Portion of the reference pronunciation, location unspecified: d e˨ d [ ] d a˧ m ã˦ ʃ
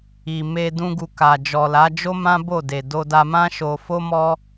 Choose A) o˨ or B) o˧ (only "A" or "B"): B